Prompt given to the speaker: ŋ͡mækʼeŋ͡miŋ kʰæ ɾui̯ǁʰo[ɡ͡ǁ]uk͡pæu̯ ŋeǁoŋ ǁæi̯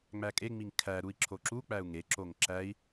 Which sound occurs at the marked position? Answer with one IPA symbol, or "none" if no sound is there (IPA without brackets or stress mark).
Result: ǁ